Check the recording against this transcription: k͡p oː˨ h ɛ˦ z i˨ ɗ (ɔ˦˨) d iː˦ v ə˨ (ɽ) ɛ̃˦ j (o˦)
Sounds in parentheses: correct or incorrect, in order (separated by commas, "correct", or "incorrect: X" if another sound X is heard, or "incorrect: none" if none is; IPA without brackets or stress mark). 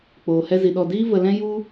correct, incorrect: l, incorrect: u˦